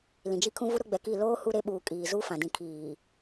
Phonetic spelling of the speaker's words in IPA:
l ĩ˨ d͡ʒ i˦ kʰ ũ˦ v u˦ ɾ ʊ˦ ɡ͡b ɛ˨ k i˦˨ l oː˦ h u˦ ɾ e˦ ɓ uː˨ kʼ iː˨ z u˦ f ã˨ d ĩ˨ kʰ iː˨

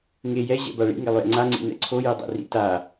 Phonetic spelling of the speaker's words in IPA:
ŋ e j ɛ ʑ ɛ̰ b a ɭ ḭ ŋ e lˠ j ɛ̰ ŋ͡ǀ a ŋ͡ǀ ḭ n ɛ̰ ǀʰ o j e dˤ ɛ̰ r ḭ t a

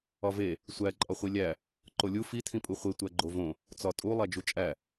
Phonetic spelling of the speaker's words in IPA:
ɒ v e | sʷ æ ǃʼ ɒ χʷ i lʲ æ | ǃ o lʲ u f i tʰ ĩ pʼ u χʷ e tʷ æ ɡ͡ǃ o v õ | t͡s ɒ tʼ u lˠ æ d͡ʒ u t͡ʃʼ æ

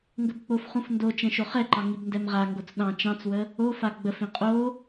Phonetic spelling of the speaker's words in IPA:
ŋ ɡ ə b k͡p o f χ ũ f n d o t͡ʃ ɛ̃ ʃ o χ ɛ ǃ ɑ ŋ i b n d ɛ m ʁ a ŋ ɡ o t͡s ɗ ɑ̃ t͡ʃ ɑ̃ t͡s w ə | o f a ɡ͡b ə f ĩ qʼ o

